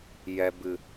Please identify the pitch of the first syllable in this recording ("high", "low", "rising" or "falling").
low